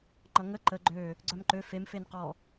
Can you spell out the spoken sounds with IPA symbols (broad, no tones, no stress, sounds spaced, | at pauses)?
ŋ͡ǃ ʌ ŋ ə ǃ ə ɡ͡ǃ ø | ɡ͡ǀ œ m ǃ ø f e m f e n q ɔ